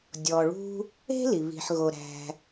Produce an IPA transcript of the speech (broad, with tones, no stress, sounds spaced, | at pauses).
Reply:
dʲ ɔ˩ ɭ ṳ˧ | e̤˥ l i˩ β i̤˩ ħ ɣ o˩ ɾ æ̤˩